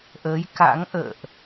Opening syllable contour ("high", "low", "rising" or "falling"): rising